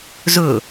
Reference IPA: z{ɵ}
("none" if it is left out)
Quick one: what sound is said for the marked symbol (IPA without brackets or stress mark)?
ɵ